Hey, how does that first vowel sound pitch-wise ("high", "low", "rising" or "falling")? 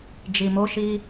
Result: low